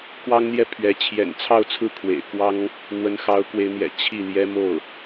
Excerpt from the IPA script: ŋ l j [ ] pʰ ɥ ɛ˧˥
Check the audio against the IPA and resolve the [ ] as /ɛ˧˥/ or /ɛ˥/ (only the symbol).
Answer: ɛ˥